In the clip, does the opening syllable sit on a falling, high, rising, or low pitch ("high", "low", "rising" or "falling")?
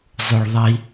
low